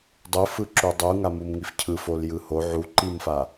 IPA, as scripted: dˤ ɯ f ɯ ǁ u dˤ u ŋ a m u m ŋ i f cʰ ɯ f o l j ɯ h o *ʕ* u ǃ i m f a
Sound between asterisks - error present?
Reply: no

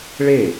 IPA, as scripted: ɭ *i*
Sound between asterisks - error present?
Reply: yes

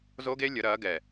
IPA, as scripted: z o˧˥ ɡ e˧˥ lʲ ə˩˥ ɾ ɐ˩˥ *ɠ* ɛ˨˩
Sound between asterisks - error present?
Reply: yes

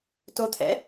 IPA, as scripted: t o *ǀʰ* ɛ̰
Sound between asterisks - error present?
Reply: yes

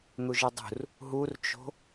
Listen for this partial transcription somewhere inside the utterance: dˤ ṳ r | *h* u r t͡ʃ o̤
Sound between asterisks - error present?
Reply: yes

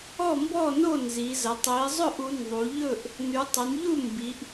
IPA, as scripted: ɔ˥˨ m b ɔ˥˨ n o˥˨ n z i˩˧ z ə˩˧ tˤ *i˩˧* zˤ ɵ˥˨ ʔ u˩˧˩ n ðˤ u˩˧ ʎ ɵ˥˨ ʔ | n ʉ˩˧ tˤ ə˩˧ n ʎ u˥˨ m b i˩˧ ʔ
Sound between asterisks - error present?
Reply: no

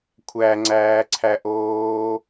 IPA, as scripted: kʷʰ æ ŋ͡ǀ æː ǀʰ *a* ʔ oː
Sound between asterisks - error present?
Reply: yes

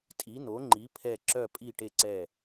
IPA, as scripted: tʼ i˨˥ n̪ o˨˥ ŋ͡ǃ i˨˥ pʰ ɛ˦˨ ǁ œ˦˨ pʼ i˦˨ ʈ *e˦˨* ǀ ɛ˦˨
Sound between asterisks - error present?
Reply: no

